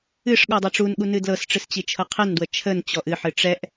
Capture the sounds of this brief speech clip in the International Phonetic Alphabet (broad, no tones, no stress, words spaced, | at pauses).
ɨʂɠɔ dˤɤʈ͡ʂunɠu nɨdlɤsʈ͡ʂɨs t͡ɕit͡ʃʰɤqʰɛndwə t͡ʃʰənt͡ɕɔʔ ɨħɨ ʈ͡ʂɛʔ